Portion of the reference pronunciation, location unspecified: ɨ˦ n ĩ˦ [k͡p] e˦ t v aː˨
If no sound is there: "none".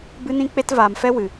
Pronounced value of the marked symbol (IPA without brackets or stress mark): k͡p